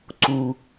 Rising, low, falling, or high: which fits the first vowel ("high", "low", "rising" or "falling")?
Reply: low